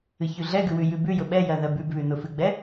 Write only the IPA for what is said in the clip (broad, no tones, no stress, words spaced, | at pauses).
ɨçʉɮɛɡʉ wʉjʉbʉjʊ ɓɛjɜ ðɜbʉbβʉ nʊfɨɡ͡bɛ